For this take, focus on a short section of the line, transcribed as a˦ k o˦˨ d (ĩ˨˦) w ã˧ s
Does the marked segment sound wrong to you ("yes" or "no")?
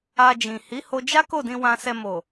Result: yes